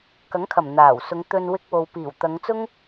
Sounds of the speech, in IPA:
kɐ˨˥ŋkʰɐ˨˩m n̪aː˨˩wsʊ˨˧ŋ t̪ɵ˧nwɪ˧k̚ wo˨wpiː˨˩wt̪ɐ˨˧ŋt͡sʊ˥ŋ

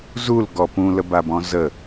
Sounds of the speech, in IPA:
zulɡɔ pũləbabɔ̃ zə

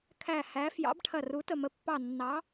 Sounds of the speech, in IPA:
kʰæ˦˨hæ˧˥ fjɑ̰˧˥bʈʰɐ˦˨ru˧˥ tə˦˨mə˧˥pːɑ˦˨ nːɑ˧˥

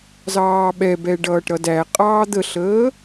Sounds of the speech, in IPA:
zɑːɓɛbɛ ɖʌːʈɾʌdæqʼɑː d̪əɬəː

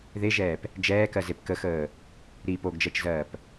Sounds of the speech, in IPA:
ðeʒɛːp | d͡ʒɛːkɜzep kəxəː | ɾi poɡd͡ʒɜt͡ʃzɜːp

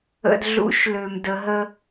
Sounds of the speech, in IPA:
ə̰˧dɮṵ˧˥ʃlø˧mdə˧ ɦə˥

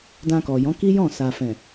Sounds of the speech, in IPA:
dã˧kɔ˨ jɔ̃˨˦ki˦ jɔ̃˦˨ sa˨fɛ̃˨

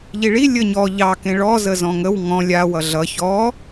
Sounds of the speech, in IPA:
ʎiɭi lʲəɲɔ ʎɑ kẽɭɔ zəzɔ̃ŋəw ŋɔ̃ lʲa wʌɮʌ çɔ

